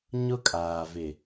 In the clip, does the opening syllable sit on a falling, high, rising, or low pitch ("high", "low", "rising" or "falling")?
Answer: high